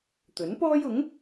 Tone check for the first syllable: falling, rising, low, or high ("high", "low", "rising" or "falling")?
rising